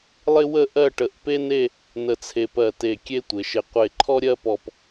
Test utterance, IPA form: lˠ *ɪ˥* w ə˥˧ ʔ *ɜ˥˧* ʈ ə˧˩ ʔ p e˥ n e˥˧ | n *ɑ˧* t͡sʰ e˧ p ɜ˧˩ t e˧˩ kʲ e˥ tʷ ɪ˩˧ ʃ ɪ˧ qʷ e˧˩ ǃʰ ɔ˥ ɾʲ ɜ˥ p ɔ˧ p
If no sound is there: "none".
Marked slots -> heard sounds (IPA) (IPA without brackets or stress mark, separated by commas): ɪ˥, ɜ˥˧, ə˧